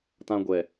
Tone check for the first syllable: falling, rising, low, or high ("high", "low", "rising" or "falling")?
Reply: high